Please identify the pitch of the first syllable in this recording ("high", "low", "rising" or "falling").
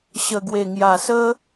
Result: low